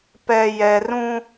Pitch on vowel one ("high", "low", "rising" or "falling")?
low